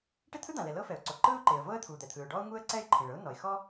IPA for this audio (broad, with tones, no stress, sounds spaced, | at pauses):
ʈ e˥ t̪ʰ ɯ˥ d̪ ã˩ l ɛ˩ l ɤ˥ f ɛ˩ ʊ̯ ǀ o˩ ǃ ɯ˥ ʊ̯ ǃ e˩ ə̯ v ɤ˥ ə̯ t̪ʰ u˩ d̪ ɛ˩ t̪ʰ ɯ˩ ʊ̯ ɖ ɔ˥ ʊ̯ ŋ u˥ ə̯ ǀ ɛ˥ ɪ̯ ǃʰ ĩ˩ ɭ ɤ˥ ʊ̯ n ɔ˩ ɪ̯ x ɔ˥